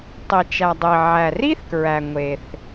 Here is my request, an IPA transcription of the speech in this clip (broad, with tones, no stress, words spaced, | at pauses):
tˤi˩t͡ʃæ˩ dˤi˩ ʕæ˩ri˥θkɹæ˩ ŋʷe˩θ